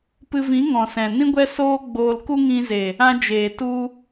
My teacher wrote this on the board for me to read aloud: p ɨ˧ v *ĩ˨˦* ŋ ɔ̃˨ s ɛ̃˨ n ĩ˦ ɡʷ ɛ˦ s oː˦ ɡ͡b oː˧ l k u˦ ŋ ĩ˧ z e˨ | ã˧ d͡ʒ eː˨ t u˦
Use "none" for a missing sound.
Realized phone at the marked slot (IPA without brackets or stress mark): ĩ˨˦